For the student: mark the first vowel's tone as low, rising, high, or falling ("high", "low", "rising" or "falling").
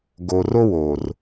low